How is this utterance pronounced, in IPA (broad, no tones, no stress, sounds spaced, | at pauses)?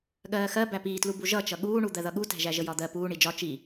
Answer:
ɠ ɜː x ɜ b æ p iː t l u b u ʒ ʌ t͡ʃ ʌ ɠ uː ɳ u d̪ ɜ ð ʌ ɠ u t æ̤ ʒ æ ʒ ə j ɒ d̪ ɜ p uː ɳ i d͡ʒ ɒ t͡ʃ i